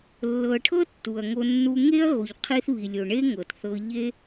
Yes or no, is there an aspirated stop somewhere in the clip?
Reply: yes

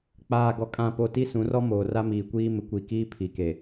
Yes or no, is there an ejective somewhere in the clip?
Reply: yes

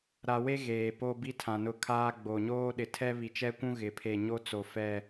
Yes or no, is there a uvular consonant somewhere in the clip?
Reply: no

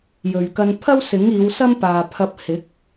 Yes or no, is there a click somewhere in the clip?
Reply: no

